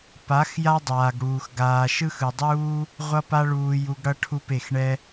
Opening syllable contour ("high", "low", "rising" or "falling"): rising